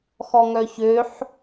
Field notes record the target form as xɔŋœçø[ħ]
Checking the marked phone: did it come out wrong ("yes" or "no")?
no